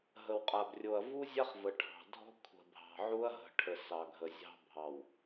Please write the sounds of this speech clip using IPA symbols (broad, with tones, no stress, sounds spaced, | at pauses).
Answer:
ɦ ə˨ w qʼ a˨ b rʲ o˨ ɐ̯ v u˦ zʲ a˦ χ v ə˨ ʈʰ ɑ̤˨ dʱ ɔ̤˦ kʷʰ ə̤˨ bʱ ɑ̤˨ ʕ u˦ ɐ̯ ɦ ə̤˨ ʈʰ ə˨ s ɑ˨ ɡʱ ə˨ zʲ ɑ̤˦ bʱ ɑ˨ w